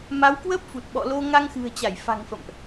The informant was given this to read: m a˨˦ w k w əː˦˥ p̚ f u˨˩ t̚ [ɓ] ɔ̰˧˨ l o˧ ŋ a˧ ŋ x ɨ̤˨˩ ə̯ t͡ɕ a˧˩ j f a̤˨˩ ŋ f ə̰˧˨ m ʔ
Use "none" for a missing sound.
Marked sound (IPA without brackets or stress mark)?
ɓ